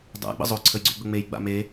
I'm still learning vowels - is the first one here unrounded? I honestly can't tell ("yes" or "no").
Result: yes